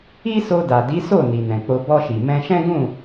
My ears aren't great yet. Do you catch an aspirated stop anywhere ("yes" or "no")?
no